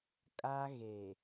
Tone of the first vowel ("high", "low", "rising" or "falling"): high